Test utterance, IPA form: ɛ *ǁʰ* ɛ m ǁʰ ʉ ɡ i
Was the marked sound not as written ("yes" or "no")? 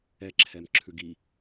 no